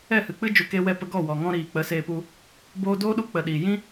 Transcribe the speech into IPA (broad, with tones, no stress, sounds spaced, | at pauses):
ɛ˦˨ h ɨ˨ k͡p ɨ˦ d͡ʒ u˨ k e˧ w ɛ˦˨ p ə˧ ɡ ɔ˦˨ w ɔ˨ ŋ ɔ̃˦ ɾ iː˨ k͡p ə˨˦ s eː˧ p u˧ | b oː˧ d oː˦ ɗ u˧ k͡p ə˨ ɗ iː˨ j ĩ˦